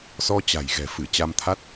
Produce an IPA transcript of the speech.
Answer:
s ɔ˧ t͡ɕ a̤˨˩ j ɣ ɛ̤˨˩ f ɨ˧˩ t͡ɕ a˧ m t̪ʰ a˦˥ t̚

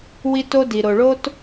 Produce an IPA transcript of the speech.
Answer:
w i˦ t o˦ d i˨ ɾ o˨ ɭ o˦ t

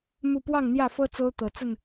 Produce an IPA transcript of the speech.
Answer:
m u˥˨ p w ɑ˥˨ ŋ n̪ j ä˥˨ f ɤ˦ t͡s o˦ ʊ̯ t̪ ɤ˨˩ t͡s ə˥˨ n

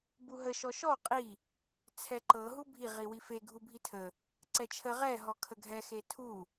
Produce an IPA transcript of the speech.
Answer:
b u ɦ ə ʃ ɔ ʃ ɔ qʼ i | t͡sʰ ɛ ǃ ɤ ɦ u bʱ i ʁ i w i f e ɡʱ u bʱ i tʰ ə | ǀ ɛ t͡ʃʰ ə ʁ ɛ ɦ ɔ kʰ ə ɡʱ ɛ x e tʰ u

